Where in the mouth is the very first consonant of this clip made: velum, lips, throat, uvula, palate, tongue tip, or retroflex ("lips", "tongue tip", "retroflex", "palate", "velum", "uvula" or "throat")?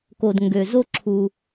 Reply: velum